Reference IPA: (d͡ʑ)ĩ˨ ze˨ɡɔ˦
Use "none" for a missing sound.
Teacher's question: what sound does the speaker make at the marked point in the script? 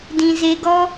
d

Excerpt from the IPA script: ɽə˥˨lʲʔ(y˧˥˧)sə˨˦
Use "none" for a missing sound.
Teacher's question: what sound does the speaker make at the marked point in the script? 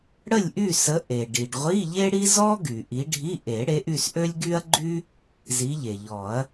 y˥˨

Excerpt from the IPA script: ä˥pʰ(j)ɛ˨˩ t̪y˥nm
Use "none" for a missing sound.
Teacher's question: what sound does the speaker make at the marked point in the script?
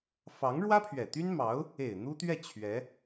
ɥ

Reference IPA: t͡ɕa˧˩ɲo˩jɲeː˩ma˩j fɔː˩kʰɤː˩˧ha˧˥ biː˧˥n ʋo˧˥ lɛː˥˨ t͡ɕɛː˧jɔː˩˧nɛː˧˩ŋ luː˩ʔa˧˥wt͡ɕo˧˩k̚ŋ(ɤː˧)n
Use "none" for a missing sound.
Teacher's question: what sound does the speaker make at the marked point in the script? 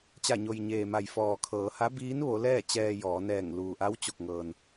ɤː˩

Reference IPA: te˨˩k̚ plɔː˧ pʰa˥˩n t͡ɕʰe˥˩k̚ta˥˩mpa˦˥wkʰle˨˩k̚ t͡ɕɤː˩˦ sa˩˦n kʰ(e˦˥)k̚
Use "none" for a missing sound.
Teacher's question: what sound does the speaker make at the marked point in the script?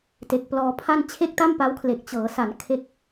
e˦˥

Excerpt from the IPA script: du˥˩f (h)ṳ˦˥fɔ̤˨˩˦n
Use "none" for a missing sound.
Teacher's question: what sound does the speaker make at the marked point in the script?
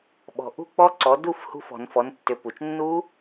h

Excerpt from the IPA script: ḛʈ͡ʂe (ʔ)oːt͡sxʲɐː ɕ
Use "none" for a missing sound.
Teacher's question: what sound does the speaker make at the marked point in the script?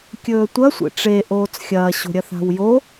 ʔ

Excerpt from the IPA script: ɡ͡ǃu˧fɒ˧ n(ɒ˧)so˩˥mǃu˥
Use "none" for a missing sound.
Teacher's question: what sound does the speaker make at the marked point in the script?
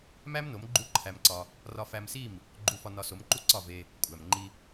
ɒ˧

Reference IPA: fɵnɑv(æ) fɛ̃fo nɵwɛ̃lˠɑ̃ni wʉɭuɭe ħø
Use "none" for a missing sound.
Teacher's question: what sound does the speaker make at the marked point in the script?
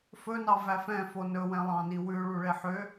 æ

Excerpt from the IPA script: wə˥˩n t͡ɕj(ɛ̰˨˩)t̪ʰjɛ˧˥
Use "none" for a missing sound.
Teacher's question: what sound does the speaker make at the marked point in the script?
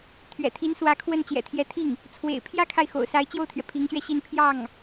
ɛ̰˨˩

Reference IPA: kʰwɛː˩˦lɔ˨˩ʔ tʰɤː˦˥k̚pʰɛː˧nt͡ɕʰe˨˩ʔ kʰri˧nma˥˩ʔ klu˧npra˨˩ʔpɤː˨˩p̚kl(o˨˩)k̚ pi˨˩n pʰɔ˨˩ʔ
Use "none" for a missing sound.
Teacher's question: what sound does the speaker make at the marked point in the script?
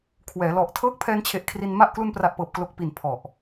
o˨˩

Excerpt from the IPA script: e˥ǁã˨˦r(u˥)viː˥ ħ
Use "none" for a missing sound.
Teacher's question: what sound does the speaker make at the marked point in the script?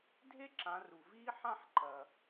u˨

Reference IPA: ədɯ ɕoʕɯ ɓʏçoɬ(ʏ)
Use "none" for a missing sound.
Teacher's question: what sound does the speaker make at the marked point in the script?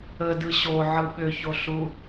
u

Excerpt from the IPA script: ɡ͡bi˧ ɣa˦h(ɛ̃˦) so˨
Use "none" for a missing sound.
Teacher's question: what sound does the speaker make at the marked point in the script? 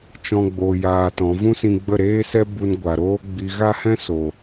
ɛ̃˦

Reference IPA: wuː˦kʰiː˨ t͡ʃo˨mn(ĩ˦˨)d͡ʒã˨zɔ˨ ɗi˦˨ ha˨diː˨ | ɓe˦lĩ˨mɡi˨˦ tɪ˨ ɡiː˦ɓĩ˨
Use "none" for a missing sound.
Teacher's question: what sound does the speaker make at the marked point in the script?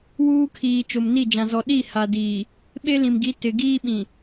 i˦˨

